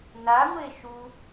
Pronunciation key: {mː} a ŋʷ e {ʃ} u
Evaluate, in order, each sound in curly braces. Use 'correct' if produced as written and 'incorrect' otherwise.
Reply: incorrect, correct

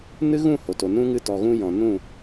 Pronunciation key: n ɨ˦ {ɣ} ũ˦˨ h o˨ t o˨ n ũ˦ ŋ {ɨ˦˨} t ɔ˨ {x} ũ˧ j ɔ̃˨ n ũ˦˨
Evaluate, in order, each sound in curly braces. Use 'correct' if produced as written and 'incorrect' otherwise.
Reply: correct, correct, incorrect

